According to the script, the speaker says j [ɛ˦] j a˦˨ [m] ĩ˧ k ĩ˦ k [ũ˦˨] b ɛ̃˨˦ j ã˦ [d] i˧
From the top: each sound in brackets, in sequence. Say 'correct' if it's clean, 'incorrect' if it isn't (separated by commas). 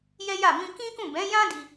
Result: correct, correct, correct, correct